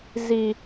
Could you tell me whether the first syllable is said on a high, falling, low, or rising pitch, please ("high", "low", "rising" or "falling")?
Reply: low